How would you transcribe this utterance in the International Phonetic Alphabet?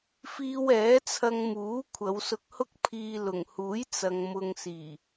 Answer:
fiː˧wɛː˨˥t͡sʰɐ˧ŋ muː˨˥ kʷʰɐ˨˧wsʊ˧k̚hʊ˥k̚pʰiː˧ lʊ˨˩ŋhuː˨˥j t͡sɐ˨ŋ mʊ˨ŋsiː˨˩

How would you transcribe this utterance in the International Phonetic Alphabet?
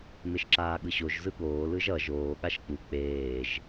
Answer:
meʃǁaːɠɯɕoʒ zɯɠoː lɯʒʌ ʒoː ɠaʃk͡pu k͡peːʒ

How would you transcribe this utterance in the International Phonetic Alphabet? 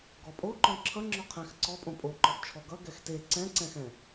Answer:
ɡɔpʼoǃɔ̃ ǁʰʌŋ͡ǁɔ qʰɛ̃xǀɔ pʼõpʼoǃɔft͡ʃʰɔ ɡʌ ɡɛxte ǀɛ̃ǀɛ̃xɛ̃

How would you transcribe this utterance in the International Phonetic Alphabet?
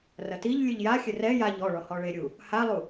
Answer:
rɐtiʎlʲɨʎ jaxʲɘ rɛ jaʎ ɔɭɔ hɔɭeɾʲu | halˠu

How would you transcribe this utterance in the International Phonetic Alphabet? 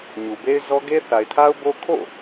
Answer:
ɲu˨be˦ɪ̯zɔ˦ ɡe˦θa˨ɪ̯tʰa˦ʊ̯bo˦ kʰo̰˦˨

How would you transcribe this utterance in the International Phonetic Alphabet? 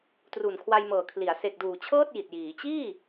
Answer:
tru˨˩nkʰwa˧j mɤː˨˩kʰli˩˦a̯ se˨˩k̚duː˨˩t͡ɕʰɤː˥˩t̚ ji˨˩t̚jiː˩˦ t͡ɕiː˥˩

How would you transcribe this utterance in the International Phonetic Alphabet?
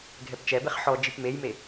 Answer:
ɡʱɛpt͡ʃɛbeχ ħɔ d͡ʒipmejme

